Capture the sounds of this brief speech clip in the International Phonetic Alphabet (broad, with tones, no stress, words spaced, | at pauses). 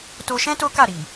to˧ʃɛ̃˦ to˦ka˦˨ɾi˨